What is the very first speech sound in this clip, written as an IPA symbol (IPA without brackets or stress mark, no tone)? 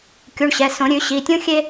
kʲ